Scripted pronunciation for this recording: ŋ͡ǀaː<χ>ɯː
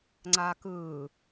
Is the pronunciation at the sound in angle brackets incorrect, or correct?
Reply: incorrect